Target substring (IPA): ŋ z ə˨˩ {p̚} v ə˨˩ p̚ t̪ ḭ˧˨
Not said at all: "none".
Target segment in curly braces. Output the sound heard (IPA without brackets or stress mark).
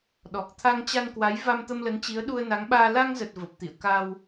t̚